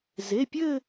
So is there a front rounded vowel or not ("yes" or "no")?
no